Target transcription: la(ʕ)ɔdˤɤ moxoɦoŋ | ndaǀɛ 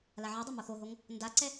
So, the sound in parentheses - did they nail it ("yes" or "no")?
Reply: yes